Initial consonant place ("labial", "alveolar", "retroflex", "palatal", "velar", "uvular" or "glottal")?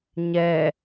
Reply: palatal